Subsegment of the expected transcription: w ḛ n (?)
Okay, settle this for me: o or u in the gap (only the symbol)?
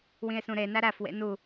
u